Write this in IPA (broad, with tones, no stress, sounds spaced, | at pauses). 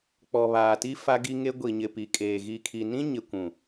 k͡p ɔ˨ β aː˨ t i˦ f a˦ ɡ i˦ ŋ e˦ ɡʷ i˨ ɲ ɪ˨ p i˨ kʼ eː˨ ɣ i˨ kʰ i˨ n ĩ˦ ɲ ɪ˨ kʷ ũ˨